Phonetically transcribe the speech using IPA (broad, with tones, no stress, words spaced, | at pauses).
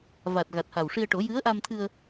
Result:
va˨˩t̚ ɣa˨˩t̚ha˨˩wʂi˧ə̯ ʈo˨˩˦jɨ˧˥ə̯ʔa˧mt̪ʰɨ˧ə̯